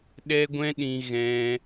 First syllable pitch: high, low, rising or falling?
high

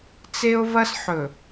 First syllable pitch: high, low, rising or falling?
high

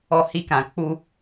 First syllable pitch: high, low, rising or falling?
low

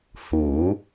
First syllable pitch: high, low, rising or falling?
rising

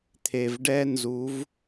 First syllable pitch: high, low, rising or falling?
low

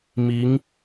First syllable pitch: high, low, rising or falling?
rising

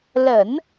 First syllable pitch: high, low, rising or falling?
low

